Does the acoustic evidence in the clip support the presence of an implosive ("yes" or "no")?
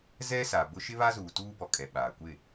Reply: yes